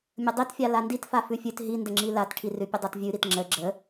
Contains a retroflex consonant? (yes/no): yes